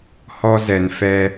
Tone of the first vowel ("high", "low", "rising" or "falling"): high